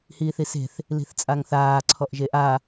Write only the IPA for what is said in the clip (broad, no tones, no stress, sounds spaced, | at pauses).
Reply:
h iː θ i s e̤ θ | l i̤ θ t͡sʼ a ŋ θ aː ǀʰ ɔ ʔ ʒ e ʔ a